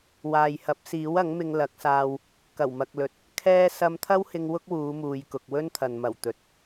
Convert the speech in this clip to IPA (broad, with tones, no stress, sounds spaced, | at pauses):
w aː˨ j h ɐ˨˥ p̚ s iː˨˥ w ɐ˨˥ ŋ m ɪ˧ ŋ l ɐ˨˥ k̚ s aː˧ w | k ɐ˨˩ w m ɐ˨ k̚ l ɵ˨ t̚ | kʰ ɛː˥ s ɐ˧ m t̪ʰ ɐ˥ w h ɪ˧ ŋ w ʊ˥ k̚ w uː˨˧ m uː˨ j k ʊ˨ k̚ w ɵ˥ n t̪ʰ ɐ˨ n m ɐ˨˩ w t̪ ɵ˨ t̚